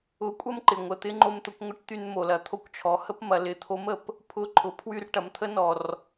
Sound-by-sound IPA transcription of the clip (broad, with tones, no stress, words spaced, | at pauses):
ʊ˧˥kʷʼɐ˥mǃɪ˩ ŋʷə˩t̪ɪ˥ ŋ͡ǃo˧mt̪ʊ˩˧kʷŋʷə˧˥ʈ t̪y˧nmo˩lɐ˩t̪ʰo˧˥kʷ t͡ʃʰɔ˩˧hə˥pmɐ˩˧ lɪ˩˧t̪ʰo˧˥mə˩p | pʰʊ˧˥ ǃʰʊ˩˧pʰwy˧rʈɐ˩˧mt̪ʰə˧˥ nɔ˩r